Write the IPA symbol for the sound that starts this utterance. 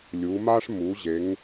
lʲ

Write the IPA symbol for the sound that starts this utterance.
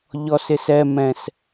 ʎ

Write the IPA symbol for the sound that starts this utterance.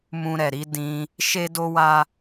m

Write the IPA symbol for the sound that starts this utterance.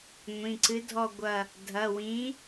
ŋʷ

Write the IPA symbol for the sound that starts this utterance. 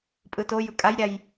pʼ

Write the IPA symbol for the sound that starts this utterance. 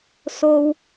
s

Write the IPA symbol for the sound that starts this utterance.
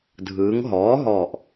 dʱ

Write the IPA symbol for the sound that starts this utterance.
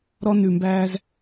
ɾ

